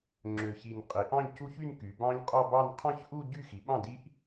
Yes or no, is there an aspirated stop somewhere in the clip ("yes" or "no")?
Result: yes